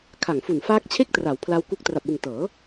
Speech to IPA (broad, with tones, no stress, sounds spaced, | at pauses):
kʰ a˨˩ ŋ f u˨˩ n f aː˦˥ k̚ t͡ɕʰ e˥˩ k̚ t r a˩˦ w pʰ l a˦˥ w k u˦˥ k̚ t r a˨˩ p̚ w ɯ˨˩ ŋ t ɤː˩˦